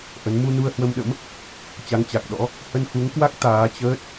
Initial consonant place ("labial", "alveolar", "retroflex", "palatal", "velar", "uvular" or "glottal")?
glottal